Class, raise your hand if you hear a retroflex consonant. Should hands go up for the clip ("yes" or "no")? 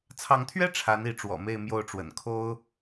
yes